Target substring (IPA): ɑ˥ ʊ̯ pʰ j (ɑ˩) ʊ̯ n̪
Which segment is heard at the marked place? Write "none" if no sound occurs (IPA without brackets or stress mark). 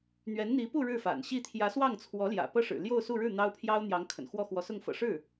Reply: ɑ˥